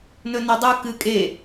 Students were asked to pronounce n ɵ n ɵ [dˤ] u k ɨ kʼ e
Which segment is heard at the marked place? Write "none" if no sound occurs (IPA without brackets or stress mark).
dˤ